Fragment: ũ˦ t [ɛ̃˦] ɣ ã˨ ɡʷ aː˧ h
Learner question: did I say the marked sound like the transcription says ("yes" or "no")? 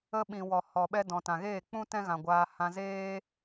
yes